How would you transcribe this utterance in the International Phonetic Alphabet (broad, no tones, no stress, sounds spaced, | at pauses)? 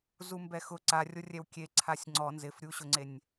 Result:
z u m b ɛ x ʊ ǀ a rʲ o rʲ ɛ w kʲ e ǀʰ a sʲ ŋ͡ǀ ɔ n z ɪ f ɾʲ u ɕ ʊ ŋ͡ǀ e nʲ